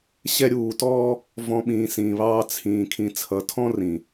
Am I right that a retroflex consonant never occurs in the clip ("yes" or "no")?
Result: yes